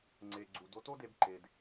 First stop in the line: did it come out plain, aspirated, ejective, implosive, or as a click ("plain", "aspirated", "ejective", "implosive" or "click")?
click